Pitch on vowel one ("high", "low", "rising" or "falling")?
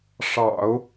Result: low